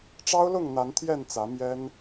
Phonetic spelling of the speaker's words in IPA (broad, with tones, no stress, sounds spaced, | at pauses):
ʈ͡ʂ ɑ˦ ʊ̯ l ʊ˥˨ ŋ n̪ a˨˦ n t̪ʰ j ɛ˥˨ n t͡s ä˨˦ m j ɛ˦ n